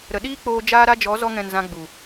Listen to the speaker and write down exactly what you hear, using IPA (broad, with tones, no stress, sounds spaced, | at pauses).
ɾ ə˨ ɗ iː˦ k͡p oː˧ d͡ʒ aː˦ ɾ a˦ d͡ʒ ɔ˨˦ z ɔ˧ ŋ ɛ̃˨ n z ã˧ ɡ͡b u˨